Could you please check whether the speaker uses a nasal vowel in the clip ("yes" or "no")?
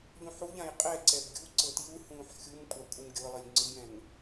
yes